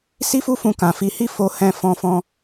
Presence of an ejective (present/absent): absent